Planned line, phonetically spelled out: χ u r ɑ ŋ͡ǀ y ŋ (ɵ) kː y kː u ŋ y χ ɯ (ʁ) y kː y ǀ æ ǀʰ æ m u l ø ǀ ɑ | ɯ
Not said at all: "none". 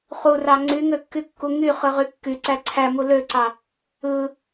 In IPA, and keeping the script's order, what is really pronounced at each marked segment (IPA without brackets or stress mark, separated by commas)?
ø, ʁ